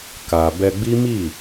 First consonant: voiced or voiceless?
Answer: voiceless